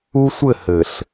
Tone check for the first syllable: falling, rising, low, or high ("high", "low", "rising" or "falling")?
high